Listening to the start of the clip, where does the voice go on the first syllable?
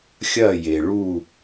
falling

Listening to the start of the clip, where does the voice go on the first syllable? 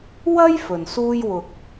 high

